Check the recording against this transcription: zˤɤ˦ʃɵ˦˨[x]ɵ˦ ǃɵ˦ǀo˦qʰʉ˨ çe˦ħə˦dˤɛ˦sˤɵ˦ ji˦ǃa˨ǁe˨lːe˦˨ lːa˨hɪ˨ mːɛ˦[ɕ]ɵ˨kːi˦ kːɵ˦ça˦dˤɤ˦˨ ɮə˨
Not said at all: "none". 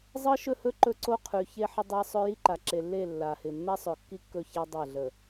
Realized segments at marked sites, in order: h, sˤ

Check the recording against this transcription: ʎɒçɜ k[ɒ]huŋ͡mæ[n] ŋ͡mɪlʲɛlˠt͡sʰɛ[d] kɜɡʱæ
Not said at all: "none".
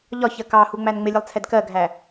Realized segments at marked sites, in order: ɑ, n, d

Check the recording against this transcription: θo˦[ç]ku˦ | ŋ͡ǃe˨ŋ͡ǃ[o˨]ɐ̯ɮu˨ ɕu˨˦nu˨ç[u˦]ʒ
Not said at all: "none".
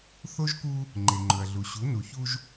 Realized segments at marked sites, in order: ʒ, ɵ˨, u˦

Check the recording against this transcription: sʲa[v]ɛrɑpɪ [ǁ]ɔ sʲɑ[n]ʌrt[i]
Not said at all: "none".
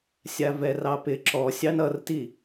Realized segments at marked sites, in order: v, ǁ, n, i

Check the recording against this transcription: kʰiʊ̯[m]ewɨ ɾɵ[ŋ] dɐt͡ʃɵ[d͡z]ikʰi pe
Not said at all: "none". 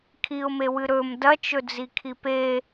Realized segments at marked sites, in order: m, m, d͡z

